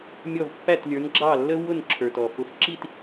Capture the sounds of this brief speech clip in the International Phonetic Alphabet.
mʲ ɔ˥˩ v pː æ˥˩ t lʲ ə˞˩˥ n ɡ͡ǁ ɑ˥˩ lː ə˥ v w ʊ˥˩ n ǁʰ ə˞˩ t ɔ˩ f ʊ˩˥ f ǁ i˥˩ t

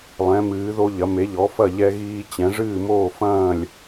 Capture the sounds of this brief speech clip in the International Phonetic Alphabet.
lˠ ɛ̃˩˧ m ɨː˩˧ ð o˧ ʎ ɐ˩˧ m e˩˧ ʎ ɔ˩˧ f ɐ˧˩ ʎ ɛ˧ ɣ iː˧ t͡ɕ ɛ̃˩˧ ʐ ɨː˧˩ m oː˧˩ f ɐ̃ː˧˩ lʲ

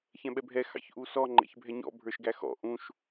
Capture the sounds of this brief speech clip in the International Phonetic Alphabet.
ç ɛ̃ ɓ ɛ bʱ ɛ x ɑ̰ ç ʔ u s ɔ ŋ͡ǃ ɛ̰ ç bʱ ɛ ɲ ɔ̰ bʱ ə˞ ʃ ɡ æ x ɔ̰ ʔ ũ ʃ

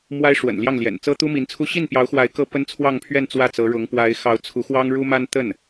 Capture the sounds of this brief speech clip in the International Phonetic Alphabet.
m w a˥ ɪ̯ ʂ w ə̰˨˩ n l j ɑ˥˩ ŋ l j ɛ̰˨˩ n t͡s ɤ˥ t̪ u˥ m i˧˥ n t͡sʰ u˥ ɕ i˥˩ n p j ɑ˧˥ ʊ̯ x w a˧˥ ɪ̯ k ɤ˥ p ə˥ n t͡sʰ w ɑ˥˧ ŋ pʰ ɥ ɛ˥˧ n t͡s w ä˥˩ t͡s ɤ˧˥ ɻ ʊ˧˥ ŋ p w a˧˥ ɪ̯ x ɑ˧˥ ʊ̯ t͡sʰ u˧˥ x w ɑ˥ ŋ ɻ u˥ m a˥ n t̪ ə˥˩ n

